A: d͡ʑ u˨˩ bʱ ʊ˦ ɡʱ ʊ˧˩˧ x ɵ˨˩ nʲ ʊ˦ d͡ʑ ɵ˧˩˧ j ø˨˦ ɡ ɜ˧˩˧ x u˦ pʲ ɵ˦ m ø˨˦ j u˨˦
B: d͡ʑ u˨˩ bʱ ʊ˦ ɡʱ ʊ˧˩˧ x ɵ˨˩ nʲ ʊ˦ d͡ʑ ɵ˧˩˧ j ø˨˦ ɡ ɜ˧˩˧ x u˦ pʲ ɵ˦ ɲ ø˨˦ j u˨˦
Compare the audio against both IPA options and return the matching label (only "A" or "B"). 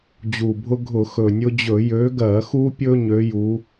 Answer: B